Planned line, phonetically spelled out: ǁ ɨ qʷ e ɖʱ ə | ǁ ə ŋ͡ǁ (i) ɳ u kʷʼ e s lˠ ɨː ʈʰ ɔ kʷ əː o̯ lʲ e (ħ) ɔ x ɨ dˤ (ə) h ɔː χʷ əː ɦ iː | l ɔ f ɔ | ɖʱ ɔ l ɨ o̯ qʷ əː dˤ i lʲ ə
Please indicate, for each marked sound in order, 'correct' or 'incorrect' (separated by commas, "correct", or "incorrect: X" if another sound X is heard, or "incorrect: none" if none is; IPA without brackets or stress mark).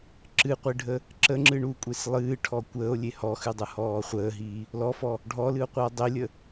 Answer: incorrect: ɨ, incorrect: h, incorrect: ɯ